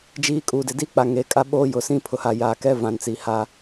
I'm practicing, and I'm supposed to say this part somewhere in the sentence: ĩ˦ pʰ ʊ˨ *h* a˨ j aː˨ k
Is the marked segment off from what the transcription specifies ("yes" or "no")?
no